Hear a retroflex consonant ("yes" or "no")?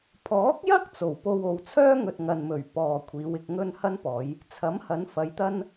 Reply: no